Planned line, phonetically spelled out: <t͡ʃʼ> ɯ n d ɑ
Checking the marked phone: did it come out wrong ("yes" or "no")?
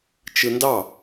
yes